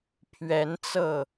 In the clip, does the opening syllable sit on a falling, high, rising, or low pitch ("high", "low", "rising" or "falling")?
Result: rising